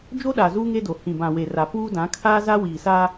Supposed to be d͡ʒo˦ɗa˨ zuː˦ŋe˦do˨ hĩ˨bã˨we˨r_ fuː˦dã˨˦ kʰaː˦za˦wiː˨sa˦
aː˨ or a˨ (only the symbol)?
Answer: a˨